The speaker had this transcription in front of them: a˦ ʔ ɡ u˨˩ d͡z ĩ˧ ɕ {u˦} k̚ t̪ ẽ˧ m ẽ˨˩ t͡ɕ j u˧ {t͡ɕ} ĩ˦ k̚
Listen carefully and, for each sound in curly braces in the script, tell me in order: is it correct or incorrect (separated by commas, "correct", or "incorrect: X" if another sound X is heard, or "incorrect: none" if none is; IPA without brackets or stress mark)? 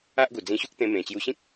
correct, incorrect: ɕ